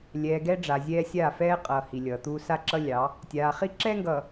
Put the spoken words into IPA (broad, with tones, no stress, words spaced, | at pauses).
lʲɛː˨ɡɛ˦ɖ͡ʐa˨zʲɛː˦ sʲaː˦˨fɛː˦qʼʌː˨ hi˨ lʲʌː˨t̪uː˦ sa˦ǁʌ˦lʲɑ˨˦ | tʲaː˨χi˦ǁɛː˦ŋɡʌː˨